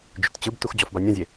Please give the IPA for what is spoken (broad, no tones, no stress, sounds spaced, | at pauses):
d͡ʒ ʏ t t͡ɕ ɯ b t u x d͡ʑ ɔ f b a nʲ ɔ̃ zʲ e